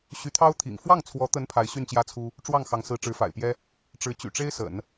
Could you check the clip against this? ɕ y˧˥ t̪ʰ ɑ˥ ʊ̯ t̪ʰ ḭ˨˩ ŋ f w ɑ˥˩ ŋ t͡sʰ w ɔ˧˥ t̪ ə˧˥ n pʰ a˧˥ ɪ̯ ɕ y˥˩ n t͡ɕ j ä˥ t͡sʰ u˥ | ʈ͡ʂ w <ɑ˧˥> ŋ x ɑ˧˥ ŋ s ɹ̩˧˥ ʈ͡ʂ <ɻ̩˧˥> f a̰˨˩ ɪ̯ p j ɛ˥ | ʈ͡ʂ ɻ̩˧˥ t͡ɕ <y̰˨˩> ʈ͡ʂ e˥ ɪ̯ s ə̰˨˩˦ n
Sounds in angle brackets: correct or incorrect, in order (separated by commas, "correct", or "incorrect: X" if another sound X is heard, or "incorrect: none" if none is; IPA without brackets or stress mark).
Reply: incorrect: ɑ˥˩, correct, correct